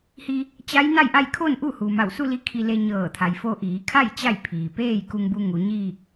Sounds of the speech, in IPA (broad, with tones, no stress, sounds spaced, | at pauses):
h i˧ | t͡ɕ a˧˥ j n a˥˨ j ʔ a˥˨ j kʰ o˥˨ n ʔ u˥˨ h u˩ m a˧˩ w s u˥˨ l i˧ kʰ i˧ l e˧ ɲ ɤː˧˩ t̪ʰ a˩˧ j f o˧ ʔ iː˩˧ kʰ a˥˨ j t͡ɕ a˥˨ j pʰ iː˩ p eː˥˨ j k u˧ ŋ b u˧ ŋ u˩˧ ɲ iː˥˨ k̚